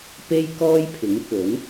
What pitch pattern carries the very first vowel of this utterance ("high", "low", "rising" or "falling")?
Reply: high